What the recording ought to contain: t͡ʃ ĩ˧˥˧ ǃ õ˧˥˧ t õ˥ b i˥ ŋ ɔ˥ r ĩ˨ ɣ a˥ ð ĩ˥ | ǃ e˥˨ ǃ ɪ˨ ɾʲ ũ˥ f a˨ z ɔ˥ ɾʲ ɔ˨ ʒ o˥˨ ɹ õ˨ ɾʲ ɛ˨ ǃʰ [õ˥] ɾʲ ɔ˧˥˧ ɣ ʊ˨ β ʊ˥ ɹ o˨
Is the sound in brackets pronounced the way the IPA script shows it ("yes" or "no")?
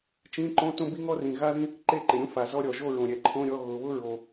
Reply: no